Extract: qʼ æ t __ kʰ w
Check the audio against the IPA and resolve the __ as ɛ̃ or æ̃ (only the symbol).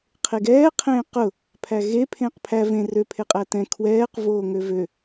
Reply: ɛ̃